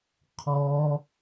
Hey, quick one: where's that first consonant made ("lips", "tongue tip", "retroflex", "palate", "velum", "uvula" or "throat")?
uvula